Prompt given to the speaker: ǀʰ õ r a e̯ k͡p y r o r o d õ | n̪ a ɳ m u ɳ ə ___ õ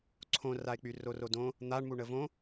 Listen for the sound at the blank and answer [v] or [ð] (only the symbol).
v